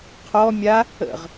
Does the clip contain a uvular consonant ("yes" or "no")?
yes